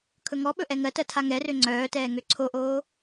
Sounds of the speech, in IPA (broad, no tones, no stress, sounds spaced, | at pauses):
kʰ ɵ ŋ ɔ ɓ ɵ ʔ ɛ ŋ ɜ t ɜ tʰ a ŋ ɛ r ø ŋ͡ǀ œː t ɛː ŋ ø ǀʰ o ʔ oː